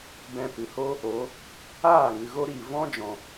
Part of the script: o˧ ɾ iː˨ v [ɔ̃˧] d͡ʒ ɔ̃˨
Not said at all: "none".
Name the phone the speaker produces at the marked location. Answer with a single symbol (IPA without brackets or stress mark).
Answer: ɔ̃˦